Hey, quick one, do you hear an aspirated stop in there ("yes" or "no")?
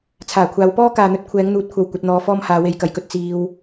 yes